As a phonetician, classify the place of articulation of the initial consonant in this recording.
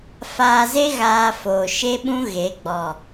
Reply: labial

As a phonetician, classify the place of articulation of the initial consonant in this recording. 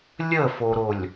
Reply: alveolar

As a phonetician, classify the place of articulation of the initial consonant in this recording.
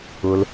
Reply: alveolar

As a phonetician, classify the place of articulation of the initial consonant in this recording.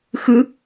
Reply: velar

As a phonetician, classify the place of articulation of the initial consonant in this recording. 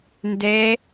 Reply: alveolar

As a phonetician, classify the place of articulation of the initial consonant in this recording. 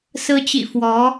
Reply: alveolar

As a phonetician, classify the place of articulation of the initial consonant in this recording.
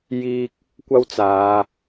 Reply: palatal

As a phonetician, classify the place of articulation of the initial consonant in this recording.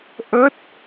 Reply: glottal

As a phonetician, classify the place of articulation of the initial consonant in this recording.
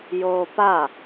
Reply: palatal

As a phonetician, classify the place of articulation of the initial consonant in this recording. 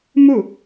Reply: labial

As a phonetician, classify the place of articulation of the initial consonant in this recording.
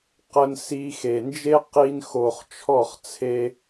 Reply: uvular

